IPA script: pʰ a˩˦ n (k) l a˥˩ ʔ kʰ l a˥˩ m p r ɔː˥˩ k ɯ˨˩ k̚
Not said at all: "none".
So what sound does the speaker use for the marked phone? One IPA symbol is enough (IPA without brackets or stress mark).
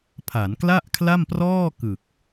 k